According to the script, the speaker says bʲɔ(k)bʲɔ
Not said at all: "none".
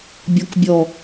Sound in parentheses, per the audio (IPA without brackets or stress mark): k